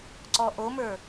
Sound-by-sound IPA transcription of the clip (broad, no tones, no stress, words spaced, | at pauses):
ǀɔʔomə˞